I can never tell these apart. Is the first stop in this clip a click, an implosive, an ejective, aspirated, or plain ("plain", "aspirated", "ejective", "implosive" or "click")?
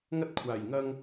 plain